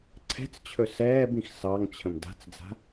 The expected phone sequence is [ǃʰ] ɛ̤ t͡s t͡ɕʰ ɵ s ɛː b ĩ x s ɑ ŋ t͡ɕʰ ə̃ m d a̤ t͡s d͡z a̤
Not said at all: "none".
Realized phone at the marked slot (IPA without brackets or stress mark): ǀʰ